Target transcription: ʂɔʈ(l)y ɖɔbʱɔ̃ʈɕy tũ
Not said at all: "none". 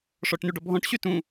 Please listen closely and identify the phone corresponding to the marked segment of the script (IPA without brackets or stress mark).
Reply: n